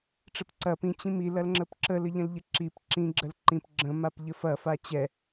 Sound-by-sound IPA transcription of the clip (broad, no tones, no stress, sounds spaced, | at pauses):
ʈ͡ʂ ə p ǀ ɐ p ĩ t͡ɕ ĩ m i l ɐ l ŋ͡ǁ ə p ǁ ə l ə ʎ ə̃ l ʎ ə ǁ i p ǁ ĩ ɡ͡ǁ ə l ǃ ĩ p ɡ͡ǁ ə̃ m a p ʎ ə f ɐ f a t͡ɕ ɛ